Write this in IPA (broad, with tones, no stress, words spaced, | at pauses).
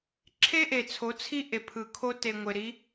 ǁʰe˦ʔe˨t͡sʰo˨˦t͡sʰi˦ ʔe˨pʰɯ˨kʰo˦te˨ ŋʷe˨ɾi˨˦